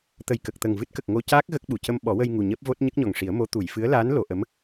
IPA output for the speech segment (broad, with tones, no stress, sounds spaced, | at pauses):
t̪ ə˨˩ j k ə˨˩ k̚ t̪ ə˨˩ ŋ v ɨ˦˥ t̚ k ə˨˩ k̚ ŋ o˧ c aː˦˥ k̚ ɣ ə˦˥ k̚ ɓ u˨˩ c ə˧ m ɓ ɔ˨˩˦ w ə˧ j ŋ u˨˩ ɲ əː˦˥ p̚ v o˦˥ t̚ ɲ ə˦˥ k̚ ɲ ɔ˨˩ ŋ ʂ i˨˩˦ ə̯ m o˧˥ t̪ u˨˩˨ j f ɨ˧˥ ə̯ l aː˧˥ n l o˨˩˨ ʔ ə˧˥ m